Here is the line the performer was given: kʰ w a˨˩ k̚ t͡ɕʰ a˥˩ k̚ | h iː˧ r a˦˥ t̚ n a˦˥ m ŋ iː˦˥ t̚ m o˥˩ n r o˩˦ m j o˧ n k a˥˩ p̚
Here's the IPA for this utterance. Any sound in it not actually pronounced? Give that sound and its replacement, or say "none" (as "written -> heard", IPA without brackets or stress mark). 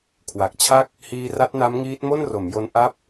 k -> ʔ